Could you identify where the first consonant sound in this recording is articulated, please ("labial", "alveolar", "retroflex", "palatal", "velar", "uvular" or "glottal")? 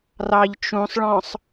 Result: alveolar